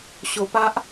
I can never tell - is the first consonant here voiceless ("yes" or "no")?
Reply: yes